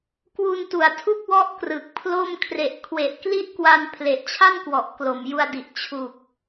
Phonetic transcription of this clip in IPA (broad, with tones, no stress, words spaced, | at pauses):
kwu˧ntu˨˩a̯tʰu˥˩k̚wɔ˦˥ʔ krɯ˨˩k̚pʰlo˥˩m kʰre˨˩ʔkʰwe˨˩ʔkli˦˥ʔ kwa˧npʰle˨˩ʔ t͡ɕʰa˥˩nkwɔ˨˩ʔ klo˨˩mju˧a̯di˨˩ʔ t͡ɕʰu˨˩k̚